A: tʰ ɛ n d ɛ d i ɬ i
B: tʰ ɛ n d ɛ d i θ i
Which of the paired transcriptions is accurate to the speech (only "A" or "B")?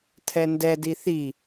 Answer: B